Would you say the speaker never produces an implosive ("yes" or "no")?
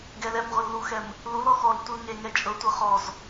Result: yes